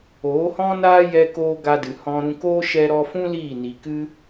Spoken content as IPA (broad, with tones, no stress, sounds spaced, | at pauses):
oː˨˦ h ɔ̃˦ n aː˦ j ɛ˦ k oː˦ ɡ a˦ d ɨ˨ h ɔ̃˦ ɾ ũ˦ k oː˦ ʃ ɛ˧ ɾ ɔ˧ f ũ˦ l iː˦˨ n i˨ k ɨ˦